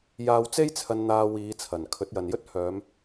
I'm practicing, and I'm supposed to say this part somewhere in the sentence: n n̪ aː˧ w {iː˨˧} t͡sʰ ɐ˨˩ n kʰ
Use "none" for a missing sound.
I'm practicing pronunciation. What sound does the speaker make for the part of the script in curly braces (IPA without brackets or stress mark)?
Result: iː˨˧